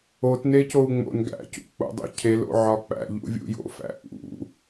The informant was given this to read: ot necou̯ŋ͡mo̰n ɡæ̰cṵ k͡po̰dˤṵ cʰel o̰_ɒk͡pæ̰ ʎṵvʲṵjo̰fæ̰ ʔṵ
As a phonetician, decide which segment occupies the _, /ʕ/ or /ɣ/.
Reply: ʕ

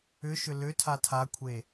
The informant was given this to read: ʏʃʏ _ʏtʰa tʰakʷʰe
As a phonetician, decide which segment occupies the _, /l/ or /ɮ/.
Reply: l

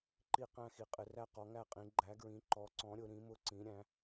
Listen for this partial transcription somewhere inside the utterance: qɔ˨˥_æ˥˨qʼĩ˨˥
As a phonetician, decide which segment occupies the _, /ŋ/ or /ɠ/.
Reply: ŋ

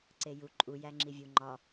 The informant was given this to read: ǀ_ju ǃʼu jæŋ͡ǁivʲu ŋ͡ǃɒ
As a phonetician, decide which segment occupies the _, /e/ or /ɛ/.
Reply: e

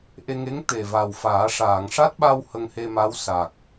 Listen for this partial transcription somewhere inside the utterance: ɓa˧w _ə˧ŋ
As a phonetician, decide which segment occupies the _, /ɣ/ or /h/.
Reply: h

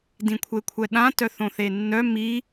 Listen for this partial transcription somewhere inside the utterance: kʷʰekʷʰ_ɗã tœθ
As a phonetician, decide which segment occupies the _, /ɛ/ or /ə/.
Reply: ɛ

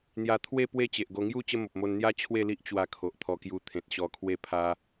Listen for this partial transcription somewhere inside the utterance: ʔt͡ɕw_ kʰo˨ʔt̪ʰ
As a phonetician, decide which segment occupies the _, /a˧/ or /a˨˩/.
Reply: a˧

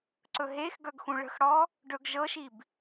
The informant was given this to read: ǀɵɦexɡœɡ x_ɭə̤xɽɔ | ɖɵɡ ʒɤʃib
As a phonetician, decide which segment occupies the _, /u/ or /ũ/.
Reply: ũ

